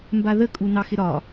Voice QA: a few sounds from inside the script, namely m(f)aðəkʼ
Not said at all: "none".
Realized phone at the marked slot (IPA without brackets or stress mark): b